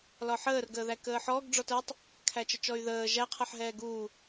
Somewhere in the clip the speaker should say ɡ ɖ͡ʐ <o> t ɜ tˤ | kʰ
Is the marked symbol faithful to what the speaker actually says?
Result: no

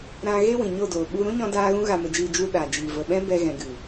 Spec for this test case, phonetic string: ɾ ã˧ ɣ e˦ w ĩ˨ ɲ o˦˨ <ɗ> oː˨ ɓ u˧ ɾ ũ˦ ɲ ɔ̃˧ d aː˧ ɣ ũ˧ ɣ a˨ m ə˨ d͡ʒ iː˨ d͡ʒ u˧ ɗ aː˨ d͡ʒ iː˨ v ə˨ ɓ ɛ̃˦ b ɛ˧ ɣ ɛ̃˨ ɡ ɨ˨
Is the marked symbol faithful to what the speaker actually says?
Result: no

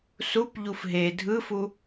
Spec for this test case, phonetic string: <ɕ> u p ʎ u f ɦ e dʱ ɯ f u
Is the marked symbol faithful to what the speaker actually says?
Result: no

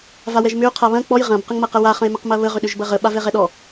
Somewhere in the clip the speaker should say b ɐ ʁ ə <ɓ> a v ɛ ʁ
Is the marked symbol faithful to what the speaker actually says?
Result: yes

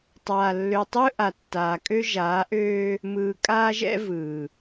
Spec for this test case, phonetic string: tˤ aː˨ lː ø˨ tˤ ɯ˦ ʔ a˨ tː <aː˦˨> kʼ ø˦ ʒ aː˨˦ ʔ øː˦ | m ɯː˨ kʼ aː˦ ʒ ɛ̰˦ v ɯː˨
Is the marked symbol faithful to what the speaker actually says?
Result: no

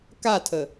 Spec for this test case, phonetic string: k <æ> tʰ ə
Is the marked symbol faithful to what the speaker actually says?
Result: no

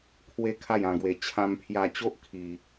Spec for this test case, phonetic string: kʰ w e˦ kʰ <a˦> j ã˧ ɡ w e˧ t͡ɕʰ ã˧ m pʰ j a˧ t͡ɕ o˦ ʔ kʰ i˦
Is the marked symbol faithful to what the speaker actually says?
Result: no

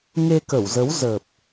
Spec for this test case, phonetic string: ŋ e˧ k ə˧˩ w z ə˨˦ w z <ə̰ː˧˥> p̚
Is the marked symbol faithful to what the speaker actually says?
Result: no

